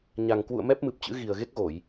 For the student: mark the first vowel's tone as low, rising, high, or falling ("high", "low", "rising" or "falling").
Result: low